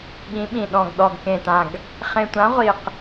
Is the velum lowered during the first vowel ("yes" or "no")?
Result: yes